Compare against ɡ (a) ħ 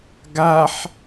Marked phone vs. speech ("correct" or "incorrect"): correct